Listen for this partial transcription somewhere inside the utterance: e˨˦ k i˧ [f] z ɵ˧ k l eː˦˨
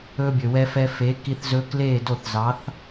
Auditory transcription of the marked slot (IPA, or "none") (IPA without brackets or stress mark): θ